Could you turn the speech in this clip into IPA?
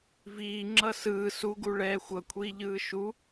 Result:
viːŋ͡ǁʌ sɯː suɡu ɭɛːxʷʌ kʷʰiːʎɯːʃu

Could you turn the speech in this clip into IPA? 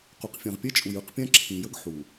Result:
qu˨q fʲã˨ʁpʲɛ˦t͡ʃʼu˨jɯ˦˨q pʲã˦ǁʰĩ˨jə˦ɡ ħu˨

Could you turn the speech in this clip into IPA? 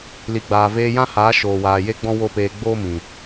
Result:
li˨ɡ͡baː˨veː˧ jã˦haː˨˦ ʃoː˨waː˨je˦ɡ͡bɔ̃˦ wo˦peː˧ ɡ͡boː˦mĩ˨

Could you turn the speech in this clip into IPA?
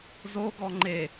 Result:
zoɡɔ ŋ͡ǃe

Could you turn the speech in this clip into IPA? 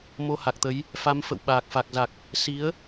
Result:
mo˧ha˨˩k̚t̪ə˨˦j | fa˨˦mfə̰˧˨w ɓaː˨˩k̚fa˨˩k̚za˨˩k̚ | si˨˦ə̯

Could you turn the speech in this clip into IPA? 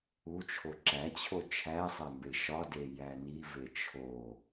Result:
ut͡ʃʰo ǁæt͡ɕʰo t͡ʃʰæsˤæ mbeʃɒde jænive t͡ʃʰo

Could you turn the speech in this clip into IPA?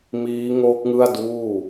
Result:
miː˦˥ŋo˦˥k̚ŋɯ˥˩a̯ duː˥˩

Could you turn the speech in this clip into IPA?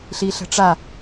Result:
ɬiɬə̤ʈ͡ʂa

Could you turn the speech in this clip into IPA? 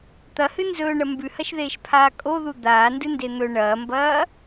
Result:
t̪ɐhɨ nzɵːɳɐ mbʉhɐʃðeːʃpʰaː kʼoðu d̪aːndɨnde n̪ɵ ɳɐːmbɐː

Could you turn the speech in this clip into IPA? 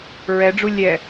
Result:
ɹɛɖ͡ʐu lʲɛ

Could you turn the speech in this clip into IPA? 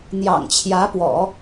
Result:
n̪jɑ̰˨˩ŋt͡ɕʰjä˧˥pwɔ̰˨˩˦

